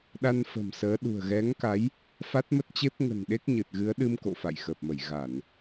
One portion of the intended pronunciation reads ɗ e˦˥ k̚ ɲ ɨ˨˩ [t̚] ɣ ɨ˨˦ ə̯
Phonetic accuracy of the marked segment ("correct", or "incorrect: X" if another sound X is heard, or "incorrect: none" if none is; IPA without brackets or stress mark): correct